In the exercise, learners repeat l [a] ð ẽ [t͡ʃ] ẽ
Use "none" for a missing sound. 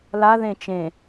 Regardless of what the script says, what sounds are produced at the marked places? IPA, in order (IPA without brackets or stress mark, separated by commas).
a, t͡ʃ